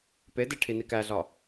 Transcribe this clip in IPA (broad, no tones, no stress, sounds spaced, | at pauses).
p e d e ʈʰ i n i k æ ɮ ɒ